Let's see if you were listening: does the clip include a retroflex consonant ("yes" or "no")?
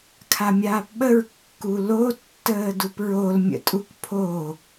no